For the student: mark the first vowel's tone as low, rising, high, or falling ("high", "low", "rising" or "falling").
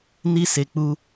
high